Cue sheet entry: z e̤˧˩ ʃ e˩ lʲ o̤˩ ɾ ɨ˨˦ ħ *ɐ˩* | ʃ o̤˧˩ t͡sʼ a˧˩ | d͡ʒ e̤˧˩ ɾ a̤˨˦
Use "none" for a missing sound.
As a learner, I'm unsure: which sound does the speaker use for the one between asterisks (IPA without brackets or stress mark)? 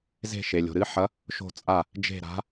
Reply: ɐ˨˦